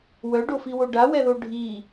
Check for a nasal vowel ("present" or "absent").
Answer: absent